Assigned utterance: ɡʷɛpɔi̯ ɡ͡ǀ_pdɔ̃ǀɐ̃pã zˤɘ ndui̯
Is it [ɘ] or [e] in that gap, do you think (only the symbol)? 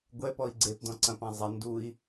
e